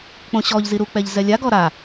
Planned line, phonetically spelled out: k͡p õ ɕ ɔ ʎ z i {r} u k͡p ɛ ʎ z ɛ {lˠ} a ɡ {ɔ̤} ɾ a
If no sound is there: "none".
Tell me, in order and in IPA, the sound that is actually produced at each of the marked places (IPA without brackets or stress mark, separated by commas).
ɾ, lʲ, ɔ